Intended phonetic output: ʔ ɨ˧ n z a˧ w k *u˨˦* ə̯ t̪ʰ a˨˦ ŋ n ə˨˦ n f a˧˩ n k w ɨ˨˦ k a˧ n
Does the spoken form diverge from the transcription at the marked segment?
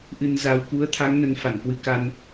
no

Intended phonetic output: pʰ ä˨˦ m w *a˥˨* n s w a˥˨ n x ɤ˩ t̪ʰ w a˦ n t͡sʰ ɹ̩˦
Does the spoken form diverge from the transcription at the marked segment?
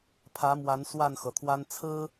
yes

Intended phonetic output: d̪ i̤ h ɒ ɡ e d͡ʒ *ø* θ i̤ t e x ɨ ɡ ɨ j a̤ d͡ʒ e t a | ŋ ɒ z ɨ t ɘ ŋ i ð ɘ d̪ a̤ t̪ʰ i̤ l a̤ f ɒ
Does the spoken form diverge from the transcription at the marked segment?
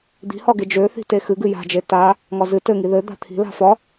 no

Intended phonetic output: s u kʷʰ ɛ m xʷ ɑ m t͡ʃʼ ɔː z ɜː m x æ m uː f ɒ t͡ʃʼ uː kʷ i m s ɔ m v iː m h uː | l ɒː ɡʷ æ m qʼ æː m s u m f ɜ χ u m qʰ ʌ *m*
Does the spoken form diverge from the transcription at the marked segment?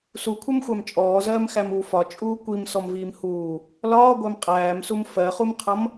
no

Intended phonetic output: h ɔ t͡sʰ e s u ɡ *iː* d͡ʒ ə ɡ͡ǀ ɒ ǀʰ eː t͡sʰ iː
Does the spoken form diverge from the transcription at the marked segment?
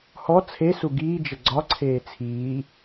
no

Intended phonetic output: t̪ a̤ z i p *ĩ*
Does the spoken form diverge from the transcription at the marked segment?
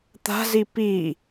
yes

